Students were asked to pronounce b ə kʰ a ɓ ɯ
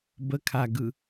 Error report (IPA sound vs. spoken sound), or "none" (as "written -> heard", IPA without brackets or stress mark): ɓ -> ɡ